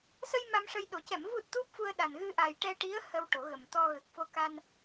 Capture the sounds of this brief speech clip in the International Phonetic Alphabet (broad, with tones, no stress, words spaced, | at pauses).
sə˧j ma˧mʂə˧jɗo˨˩˦ cɛ˨˩˨m vu˨˩t̚ t̪u˦˥p̚fu˧ə̯ɗa˨˩n ɣɨ˧ʔa˨˩j ʈɛ˧ʈi˧˥ə̯ hə˧wʈo˨˩˦ɣə˨˩mt̪ɔ˧ ɣə˨˩k̚fo˧ka˧n